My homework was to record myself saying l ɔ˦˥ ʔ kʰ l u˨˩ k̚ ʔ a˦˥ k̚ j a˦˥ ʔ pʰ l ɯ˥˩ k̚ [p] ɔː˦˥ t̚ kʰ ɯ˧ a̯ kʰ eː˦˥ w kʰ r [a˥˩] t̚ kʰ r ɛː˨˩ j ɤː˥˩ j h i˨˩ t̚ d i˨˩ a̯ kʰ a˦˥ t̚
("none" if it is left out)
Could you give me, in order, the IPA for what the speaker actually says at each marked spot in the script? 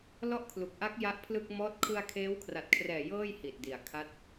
m, a˨˩

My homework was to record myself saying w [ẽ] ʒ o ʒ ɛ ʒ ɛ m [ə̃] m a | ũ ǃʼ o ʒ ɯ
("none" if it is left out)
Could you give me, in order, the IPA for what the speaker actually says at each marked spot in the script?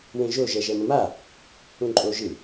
ẽ, ə̃

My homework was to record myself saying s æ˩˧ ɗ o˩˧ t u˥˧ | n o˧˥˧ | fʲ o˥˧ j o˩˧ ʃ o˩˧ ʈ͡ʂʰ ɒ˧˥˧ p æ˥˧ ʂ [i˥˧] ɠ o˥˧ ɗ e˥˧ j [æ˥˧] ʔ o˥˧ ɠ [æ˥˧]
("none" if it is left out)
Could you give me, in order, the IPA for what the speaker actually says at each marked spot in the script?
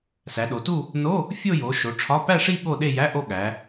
i˥˧, æ˧˥˧, æ˩˧

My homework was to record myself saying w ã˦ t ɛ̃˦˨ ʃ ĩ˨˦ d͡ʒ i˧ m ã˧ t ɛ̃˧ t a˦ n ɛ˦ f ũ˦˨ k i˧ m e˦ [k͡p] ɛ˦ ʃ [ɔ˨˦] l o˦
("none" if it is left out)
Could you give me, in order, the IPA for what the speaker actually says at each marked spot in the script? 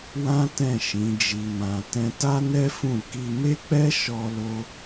k͡p, ɔ˦

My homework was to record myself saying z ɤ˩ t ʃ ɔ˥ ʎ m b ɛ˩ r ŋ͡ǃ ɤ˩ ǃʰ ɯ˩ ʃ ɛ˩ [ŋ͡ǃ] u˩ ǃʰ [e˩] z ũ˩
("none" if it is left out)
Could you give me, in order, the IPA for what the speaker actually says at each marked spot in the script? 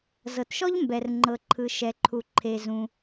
ǃʰ, e˩

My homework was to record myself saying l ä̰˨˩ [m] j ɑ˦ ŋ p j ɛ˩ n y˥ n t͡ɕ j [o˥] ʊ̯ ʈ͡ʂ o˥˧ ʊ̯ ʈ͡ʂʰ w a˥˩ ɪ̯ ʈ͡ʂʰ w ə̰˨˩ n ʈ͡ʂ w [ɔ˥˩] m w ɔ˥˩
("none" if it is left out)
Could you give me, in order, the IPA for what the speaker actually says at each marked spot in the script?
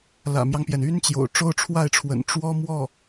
m, o̰˨˩, ɔ˥

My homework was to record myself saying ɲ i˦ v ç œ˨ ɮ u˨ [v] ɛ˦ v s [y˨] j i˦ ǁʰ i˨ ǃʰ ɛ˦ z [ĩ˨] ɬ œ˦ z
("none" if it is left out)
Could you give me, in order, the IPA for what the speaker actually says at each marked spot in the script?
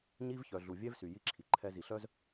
vʲ, y˨, i˨

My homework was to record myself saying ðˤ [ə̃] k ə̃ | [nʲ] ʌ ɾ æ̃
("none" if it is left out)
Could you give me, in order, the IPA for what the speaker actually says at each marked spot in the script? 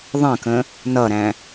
ə̃, n

